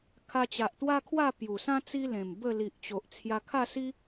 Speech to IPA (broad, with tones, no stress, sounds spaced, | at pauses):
kʰ a˧ t͡ɕ a˨ ʔ t̪ w a˦ kʰ w a˥˧ p j u˨˩ s ã˦ t͡s i˦ l ẽ˨˩ m b ə˥˧ l i˨ ʔ t͡ɕ o˨ ʔ t͡sʰ j a˧ kʰ a˥˧ s i˦